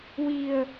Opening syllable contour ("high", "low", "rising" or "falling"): low